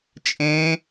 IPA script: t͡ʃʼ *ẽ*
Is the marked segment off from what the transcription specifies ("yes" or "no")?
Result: no